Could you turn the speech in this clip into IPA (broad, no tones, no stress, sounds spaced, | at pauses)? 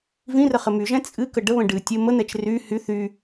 v ĩ r ə χ ɘ m y ʒ ɛ̃ t͡sʼ ɨ k ə ɖ ə β ə̃ ɖ ɨ tʲ ə m ə n̪ ɛ t͡ʃ r y h y θ y